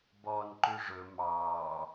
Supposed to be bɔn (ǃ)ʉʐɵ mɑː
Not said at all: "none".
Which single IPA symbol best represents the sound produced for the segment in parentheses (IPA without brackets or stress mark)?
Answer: ǃ